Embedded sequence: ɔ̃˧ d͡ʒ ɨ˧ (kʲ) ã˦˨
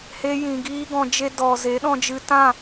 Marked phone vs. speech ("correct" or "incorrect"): incorrect